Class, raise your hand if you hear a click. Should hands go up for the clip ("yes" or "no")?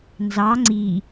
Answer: yes